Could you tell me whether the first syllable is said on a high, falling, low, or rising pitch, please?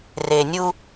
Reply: low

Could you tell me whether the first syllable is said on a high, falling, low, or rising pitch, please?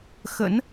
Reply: rising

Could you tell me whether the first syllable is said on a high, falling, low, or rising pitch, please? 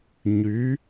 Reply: rising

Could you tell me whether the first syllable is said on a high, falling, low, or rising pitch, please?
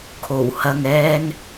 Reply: low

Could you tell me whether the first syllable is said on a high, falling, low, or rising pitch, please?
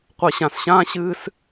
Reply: low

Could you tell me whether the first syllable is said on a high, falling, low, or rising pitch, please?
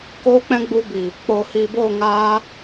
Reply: high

